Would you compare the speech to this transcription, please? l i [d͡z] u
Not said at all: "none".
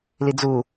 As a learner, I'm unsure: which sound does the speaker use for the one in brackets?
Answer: d͡z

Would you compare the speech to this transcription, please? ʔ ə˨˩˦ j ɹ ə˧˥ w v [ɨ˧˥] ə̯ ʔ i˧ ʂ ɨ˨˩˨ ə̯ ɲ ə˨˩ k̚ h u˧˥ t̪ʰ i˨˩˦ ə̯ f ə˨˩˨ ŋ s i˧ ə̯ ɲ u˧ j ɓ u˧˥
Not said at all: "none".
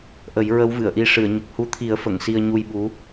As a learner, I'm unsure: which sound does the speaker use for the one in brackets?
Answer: ɨ˨˩˨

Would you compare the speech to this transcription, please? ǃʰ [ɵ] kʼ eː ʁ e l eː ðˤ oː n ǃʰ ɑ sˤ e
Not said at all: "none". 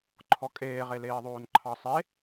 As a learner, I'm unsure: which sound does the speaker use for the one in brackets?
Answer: ɔ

